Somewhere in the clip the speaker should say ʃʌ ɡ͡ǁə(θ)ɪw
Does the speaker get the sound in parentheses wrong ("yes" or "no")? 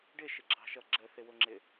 no